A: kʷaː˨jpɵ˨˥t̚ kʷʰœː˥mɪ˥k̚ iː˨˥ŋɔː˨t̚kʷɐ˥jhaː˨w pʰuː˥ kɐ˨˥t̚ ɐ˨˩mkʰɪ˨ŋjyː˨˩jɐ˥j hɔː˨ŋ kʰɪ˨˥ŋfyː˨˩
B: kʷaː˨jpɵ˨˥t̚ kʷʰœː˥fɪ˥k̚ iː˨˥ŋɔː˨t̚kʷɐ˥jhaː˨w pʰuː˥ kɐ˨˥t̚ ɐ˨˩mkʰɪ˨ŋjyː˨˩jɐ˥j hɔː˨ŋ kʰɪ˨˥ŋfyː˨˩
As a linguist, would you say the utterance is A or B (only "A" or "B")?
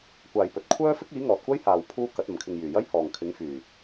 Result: B